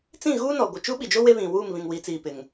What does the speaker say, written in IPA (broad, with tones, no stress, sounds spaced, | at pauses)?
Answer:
t͡s ĩ˦˨ ɣ uː˦ n ɔ˨ ɡʷ ɪ˨ t͡ʃ u˦ ɓ i˨ d͡ʒ o˦ w e˦ β ĩ˨ w uː˦˨ m β ĩ˨ ŋ w i˨˦ t͡s iː˨ p ɪ˨ ŋ